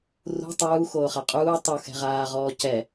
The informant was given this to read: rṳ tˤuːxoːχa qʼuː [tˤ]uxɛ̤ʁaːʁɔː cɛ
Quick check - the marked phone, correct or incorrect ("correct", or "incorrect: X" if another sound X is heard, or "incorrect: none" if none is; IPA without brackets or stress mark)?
correct